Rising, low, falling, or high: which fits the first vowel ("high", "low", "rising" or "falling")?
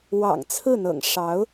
low